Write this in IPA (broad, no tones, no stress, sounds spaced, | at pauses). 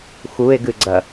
x u e̯ ɡ ɨ ɡ͡ǀ ɐ